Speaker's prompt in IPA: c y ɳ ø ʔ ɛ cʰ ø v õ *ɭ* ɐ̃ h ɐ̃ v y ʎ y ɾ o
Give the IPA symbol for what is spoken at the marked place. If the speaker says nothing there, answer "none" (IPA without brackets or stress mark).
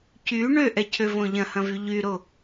ʎ